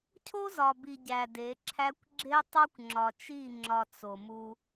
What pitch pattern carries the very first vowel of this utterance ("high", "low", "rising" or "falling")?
high